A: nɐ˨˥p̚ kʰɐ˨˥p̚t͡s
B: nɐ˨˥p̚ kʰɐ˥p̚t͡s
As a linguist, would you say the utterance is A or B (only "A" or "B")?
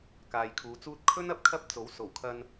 B